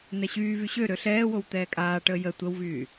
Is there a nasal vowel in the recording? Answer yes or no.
no